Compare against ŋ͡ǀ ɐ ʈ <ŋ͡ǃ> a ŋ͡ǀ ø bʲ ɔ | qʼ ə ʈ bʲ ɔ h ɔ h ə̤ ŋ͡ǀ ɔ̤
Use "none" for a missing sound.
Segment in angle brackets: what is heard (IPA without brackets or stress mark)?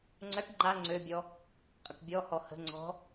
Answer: ŋ͡ǃ